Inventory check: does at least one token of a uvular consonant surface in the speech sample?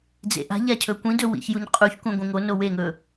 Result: yes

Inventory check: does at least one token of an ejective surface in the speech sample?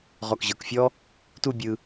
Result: no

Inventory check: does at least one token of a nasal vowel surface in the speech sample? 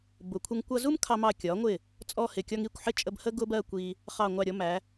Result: no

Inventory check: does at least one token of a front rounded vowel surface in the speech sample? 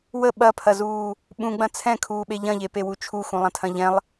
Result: no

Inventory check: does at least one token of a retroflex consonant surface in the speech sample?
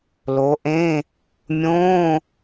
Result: no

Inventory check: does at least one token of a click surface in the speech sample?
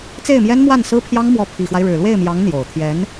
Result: no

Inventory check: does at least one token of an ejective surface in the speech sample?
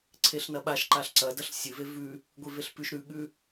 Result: no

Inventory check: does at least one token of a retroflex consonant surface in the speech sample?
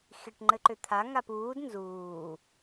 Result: yes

